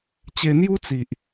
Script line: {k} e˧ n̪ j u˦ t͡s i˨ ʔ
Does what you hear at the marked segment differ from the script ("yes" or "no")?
yes